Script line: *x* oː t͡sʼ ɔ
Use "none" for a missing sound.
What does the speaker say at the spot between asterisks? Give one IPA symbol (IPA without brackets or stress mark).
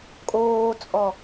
kʼ